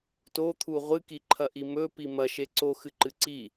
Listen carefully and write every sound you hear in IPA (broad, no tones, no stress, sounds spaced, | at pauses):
t o t̪ʰ u ʁʷ ɨ k i ǃʰ ɐ ʔ i m ɵ p i m ɐ ʃ e ǀ o x ɨ ǃ ɨ ǀ i